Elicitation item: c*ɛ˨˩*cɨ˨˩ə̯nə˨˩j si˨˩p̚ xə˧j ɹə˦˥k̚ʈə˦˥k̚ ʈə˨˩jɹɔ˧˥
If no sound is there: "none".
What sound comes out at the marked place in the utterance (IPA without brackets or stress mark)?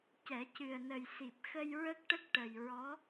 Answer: ɛ˨˩˦